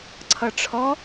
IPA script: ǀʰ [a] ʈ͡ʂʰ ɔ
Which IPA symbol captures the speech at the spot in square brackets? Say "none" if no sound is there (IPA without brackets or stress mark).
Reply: ʌ